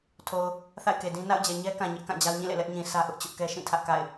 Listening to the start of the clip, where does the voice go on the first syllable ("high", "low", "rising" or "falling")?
low